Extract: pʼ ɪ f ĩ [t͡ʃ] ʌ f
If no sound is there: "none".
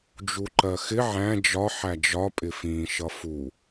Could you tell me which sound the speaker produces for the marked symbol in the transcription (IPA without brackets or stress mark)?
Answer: ʃ